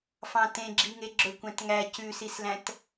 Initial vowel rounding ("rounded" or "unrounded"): unrounded